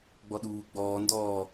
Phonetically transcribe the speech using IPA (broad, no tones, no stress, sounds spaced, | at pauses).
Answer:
ɡ͡b ɔ ɗ uː ɡ͡b ɔː n d ɔː